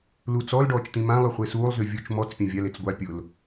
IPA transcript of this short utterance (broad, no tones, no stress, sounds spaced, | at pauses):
l u t͡s ɔ l ɖ ɔː t͡ʃ t̪ ĩ m ã lˠ y χʷ e s uː lˠ z y vʲ u t͡ʃ m ɔ t͡s pʲ ã vʲ a l e t͡s ɡʷ a pʲ ʊ l